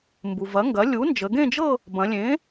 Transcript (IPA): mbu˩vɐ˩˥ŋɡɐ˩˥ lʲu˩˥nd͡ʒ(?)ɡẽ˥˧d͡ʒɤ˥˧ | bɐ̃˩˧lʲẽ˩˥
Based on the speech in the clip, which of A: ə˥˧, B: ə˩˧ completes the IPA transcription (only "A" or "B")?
B